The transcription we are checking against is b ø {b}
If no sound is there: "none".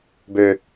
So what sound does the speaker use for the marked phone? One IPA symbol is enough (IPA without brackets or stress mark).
none